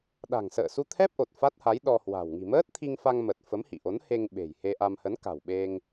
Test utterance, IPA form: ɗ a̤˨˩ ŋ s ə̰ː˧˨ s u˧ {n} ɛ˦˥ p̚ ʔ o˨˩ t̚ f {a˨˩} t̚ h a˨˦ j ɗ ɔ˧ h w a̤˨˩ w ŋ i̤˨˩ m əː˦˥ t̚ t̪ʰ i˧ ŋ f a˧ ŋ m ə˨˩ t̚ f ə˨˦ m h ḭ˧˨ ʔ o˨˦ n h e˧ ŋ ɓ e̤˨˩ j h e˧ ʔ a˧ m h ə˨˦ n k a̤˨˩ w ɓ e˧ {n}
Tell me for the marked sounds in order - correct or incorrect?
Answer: incorrect, incorrect, incorrect

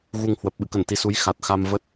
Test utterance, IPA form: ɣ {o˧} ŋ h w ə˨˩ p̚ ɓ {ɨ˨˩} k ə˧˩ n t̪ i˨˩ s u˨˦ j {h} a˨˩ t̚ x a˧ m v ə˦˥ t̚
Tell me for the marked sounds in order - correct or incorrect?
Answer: incorrect, incorrect, incorrect

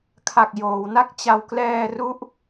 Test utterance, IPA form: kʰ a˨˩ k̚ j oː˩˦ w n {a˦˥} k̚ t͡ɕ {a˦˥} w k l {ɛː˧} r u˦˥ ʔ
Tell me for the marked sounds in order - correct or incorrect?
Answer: incorrect, incorrect, correct

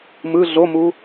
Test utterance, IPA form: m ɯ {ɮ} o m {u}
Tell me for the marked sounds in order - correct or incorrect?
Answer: correct, correct

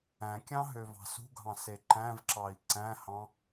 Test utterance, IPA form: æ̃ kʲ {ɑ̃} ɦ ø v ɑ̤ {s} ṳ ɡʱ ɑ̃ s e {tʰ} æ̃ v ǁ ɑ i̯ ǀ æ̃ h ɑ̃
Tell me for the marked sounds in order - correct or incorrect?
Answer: correct, correct, incorrect

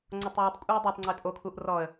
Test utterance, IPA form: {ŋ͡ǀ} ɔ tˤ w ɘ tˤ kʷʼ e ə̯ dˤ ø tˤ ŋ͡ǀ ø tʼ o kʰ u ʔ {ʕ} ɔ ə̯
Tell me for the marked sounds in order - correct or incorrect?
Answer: correct, incorrect

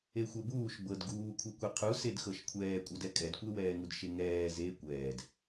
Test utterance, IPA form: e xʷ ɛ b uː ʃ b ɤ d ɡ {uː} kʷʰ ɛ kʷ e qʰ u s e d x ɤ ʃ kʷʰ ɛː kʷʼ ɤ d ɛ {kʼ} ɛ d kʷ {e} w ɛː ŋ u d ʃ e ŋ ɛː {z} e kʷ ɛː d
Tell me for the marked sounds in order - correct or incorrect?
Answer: correct, correct, correct, correct

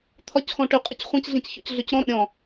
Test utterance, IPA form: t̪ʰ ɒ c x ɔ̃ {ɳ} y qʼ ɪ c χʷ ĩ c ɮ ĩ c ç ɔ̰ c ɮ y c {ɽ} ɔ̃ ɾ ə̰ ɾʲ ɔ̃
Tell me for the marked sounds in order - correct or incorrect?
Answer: incorrect, incorrect

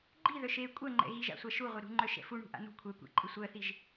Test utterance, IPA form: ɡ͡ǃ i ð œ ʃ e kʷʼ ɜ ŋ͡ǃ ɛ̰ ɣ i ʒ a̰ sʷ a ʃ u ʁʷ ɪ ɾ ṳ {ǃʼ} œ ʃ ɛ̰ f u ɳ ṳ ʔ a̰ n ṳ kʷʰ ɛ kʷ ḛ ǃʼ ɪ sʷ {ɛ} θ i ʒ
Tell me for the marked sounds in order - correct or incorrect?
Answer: incorrect, incorrect

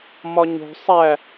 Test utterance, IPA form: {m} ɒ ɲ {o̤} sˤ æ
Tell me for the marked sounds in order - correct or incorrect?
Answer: correct, correct

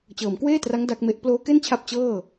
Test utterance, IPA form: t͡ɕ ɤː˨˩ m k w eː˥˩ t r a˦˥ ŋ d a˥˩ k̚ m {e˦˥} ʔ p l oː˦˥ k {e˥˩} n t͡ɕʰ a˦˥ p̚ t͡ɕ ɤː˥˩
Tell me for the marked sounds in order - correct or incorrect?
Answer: correct, correct

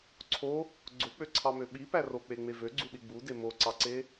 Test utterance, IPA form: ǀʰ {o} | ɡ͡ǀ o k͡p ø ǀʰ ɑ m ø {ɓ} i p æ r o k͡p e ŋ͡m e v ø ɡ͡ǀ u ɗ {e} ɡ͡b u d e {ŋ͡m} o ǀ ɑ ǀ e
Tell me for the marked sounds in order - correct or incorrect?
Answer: correct, correct, incorrect, incorrect

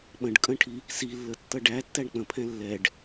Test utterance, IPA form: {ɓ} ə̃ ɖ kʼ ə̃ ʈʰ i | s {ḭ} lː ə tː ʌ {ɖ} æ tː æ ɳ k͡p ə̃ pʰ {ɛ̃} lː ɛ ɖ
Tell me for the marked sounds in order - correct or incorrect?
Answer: correct, incorrect, correct, correct

